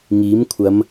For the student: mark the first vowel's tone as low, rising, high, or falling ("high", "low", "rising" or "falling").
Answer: rising